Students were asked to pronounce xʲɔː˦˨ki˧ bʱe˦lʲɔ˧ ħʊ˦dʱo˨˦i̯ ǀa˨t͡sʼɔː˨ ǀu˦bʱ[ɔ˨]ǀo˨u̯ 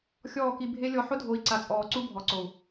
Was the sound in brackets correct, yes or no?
yes